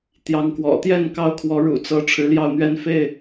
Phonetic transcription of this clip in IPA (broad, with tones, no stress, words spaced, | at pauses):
t̪jɑ˨˦ŋkwɔ̰˨˩t̪jɛ˥˨n kɑ˦ʊ̯kʰwɔ˨˦ɻṵ˨˩ t͡sɤ˨˦ ʈ͡ʂʰɻ̩˨˦ljɑ˥˨ʊ̯n̪ɥɛ˦n fe˥˨ɪ̯